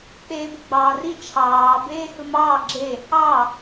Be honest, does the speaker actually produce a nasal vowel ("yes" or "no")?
no